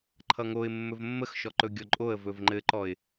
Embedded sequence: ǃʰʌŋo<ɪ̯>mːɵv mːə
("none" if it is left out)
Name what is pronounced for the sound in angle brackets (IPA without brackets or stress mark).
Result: ɪ̯